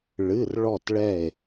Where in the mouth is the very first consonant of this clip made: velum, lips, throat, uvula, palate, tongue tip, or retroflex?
retroflex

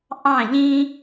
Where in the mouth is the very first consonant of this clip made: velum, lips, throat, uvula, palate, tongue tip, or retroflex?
throat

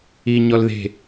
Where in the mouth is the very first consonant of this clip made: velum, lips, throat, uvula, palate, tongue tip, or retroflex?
palate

